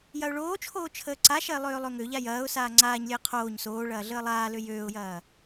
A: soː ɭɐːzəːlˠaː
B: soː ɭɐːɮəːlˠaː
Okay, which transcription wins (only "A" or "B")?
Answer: B